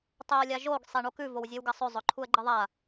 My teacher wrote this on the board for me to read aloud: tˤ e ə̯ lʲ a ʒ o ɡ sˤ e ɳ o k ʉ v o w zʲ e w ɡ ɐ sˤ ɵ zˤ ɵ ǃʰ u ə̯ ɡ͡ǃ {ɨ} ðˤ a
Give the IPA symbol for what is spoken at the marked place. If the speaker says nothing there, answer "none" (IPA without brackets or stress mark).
ɨ